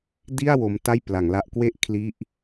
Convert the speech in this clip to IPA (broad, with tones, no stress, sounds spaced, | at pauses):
d i˥˩ a̯ w o˦˥ m t a˥˩ j p l a˩˦ ŋ l a˦˥ ʔ k w e˥˩ ʔ kʰ l i˦˥ ʔ